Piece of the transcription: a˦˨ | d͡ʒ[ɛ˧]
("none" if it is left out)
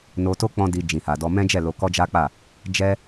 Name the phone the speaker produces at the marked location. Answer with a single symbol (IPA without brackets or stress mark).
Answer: ɛ˦